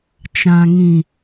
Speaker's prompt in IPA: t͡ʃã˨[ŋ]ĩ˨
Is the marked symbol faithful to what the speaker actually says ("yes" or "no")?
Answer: yes